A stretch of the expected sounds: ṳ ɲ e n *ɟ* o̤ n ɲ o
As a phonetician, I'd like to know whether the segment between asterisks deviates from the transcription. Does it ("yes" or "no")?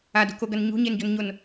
no